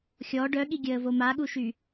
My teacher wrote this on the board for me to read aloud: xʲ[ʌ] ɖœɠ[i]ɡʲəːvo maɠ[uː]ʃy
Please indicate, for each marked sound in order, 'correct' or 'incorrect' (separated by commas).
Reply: incorrect, correct, incorrect